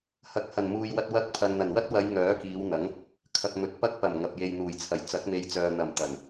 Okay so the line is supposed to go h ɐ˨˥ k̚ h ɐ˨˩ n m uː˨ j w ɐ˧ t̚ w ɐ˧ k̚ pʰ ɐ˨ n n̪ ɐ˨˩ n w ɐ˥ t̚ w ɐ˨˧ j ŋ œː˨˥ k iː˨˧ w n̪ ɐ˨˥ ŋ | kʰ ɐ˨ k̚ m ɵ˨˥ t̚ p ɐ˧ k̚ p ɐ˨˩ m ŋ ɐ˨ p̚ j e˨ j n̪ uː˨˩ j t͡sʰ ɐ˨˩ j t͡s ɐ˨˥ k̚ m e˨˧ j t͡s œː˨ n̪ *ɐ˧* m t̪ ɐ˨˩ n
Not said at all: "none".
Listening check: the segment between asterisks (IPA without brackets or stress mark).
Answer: ɐ˨˩